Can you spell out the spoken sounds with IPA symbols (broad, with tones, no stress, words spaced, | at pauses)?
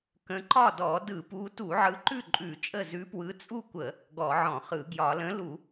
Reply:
kə̃˨˦ǃɒ˥˩ dɔ˧˩˧dɯ˧˩˧pu˨˦ tu˧˩˧ʕɯ˨˦ǃʉ˥˩ ǃʼʉ˧˩˧t͡ʃʼə˥˩ zʉ˨˦pwɯ˨˦ t͡sʼu˥˩kʷə˧˩˧ | ɡɔ˧˩˧ʕɔ̃˧˩˧χɯ˧˩˧ ɡjɒ˧˩˧ lə̃˨˦ lu˧˩˧